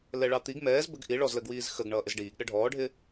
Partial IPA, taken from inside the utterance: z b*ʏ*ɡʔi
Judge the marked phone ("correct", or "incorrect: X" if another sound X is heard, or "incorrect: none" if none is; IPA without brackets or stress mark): incorrect: ə